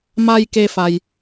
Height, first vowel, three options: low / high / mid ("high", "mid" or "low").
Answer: low